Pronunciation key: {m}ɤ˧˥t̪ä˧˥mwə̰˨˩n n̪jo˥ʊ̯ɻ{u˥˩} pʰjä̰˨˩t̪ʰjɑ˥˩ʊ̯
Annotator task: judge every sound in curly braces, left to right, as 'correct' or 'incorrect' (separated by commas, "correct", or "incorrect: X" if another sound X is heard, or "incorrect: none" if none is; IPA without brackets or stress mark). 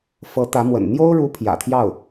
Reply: incorrect: f, incorrect: u˧˥